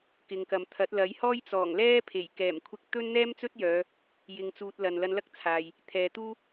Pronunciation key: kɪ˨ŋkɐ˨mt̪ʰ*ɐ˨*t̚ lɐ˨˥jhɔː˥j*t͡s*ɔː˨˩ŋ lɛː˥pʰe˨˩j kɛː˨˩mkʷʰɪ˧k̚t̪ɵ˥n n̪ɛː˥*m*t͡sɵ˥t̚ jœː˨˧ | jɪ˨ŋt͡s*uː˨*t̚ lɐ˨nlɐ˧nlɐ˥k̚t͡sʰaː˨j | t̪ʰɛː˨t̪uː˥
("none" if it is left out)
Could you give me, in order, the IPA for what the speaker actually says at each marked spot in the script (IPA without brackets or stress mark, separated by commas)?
ɐ˨˥, t͡s, m, uː˨